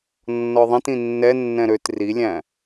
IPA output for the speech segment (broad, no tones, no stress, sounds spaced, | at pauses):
nː ɔ ðˤ ĩ t ĩ nː ɛ nː ɛ̃ ɾ ø t r i lʲ æ̃